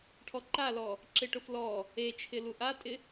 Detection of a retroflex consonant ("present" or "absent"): present